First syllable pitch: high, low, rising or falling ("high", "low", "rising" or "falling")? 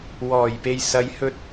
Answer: low